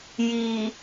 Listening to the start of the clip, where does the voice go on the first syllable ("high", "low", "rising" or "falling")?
low